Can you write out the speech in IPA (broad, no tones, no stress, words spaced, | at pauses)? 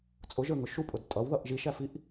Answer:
t͡sʼʊʒə˞ŋʊ ʃupʼʊd tʼʌwðʌʔ ʒiʃæfiʔ